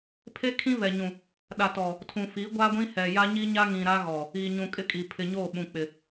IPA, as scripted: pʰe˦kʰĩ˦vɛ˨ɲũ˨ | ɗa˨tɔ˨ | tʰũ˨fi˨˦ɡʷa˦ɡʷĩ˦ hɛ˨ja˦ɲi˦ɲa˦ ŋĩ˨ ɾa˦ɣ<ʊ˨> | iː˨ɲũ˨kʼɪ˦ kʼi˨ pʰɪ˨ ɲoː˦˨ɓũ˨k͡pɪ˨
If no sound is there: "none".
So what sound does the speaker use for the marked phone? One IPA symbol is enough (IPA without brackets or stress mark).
ɔ˨